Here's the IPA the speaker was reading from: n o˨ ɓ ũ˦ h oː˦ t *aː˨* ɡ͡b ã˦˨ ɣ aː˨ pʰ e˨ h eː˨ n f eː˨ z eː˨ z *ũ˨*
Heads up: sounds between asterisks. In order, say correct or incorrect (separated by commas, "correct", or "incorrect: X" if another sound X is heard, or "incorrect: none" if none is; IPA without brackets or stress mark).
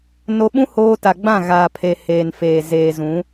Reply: incorrect: a˨, incorrect: ũ˨˦